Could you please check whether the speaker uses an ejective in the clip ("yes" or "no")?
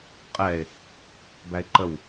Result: yes